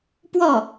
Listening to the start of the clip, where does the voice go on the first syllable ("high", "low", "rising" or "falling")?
falling